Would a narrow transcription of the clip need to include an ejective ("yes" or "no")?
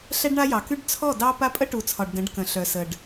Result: yes